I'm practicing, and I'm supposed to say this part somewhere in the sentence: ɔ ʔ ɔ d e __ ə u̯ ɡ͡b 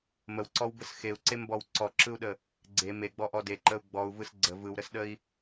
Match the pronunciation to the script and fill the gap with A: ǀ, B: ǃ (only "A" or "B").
B